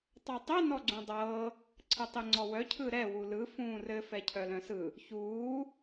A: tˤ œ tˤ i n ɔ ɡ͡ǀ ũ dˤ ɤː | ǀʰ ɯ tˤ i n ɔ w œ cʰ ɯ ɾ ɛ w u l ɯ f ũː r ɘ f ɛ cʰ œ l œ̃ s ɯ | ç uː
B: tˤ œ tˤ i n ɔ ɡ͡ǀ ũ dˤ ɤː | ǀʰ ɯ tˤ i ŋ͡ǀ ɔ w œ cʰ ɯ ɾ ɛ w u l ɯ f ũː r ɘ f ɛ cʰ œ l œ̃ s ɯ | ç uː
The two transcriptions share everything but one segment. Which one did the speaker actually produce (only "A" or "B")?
B